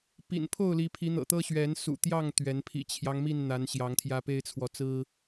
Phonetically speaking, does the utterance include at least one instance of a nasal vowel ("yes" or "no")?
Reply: no